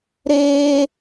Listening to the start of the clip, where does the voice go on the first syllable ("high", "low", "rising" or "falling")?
high